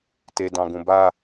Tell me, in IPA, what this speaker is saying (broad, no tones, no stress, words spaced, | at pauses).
tedɑ̃ ɡũba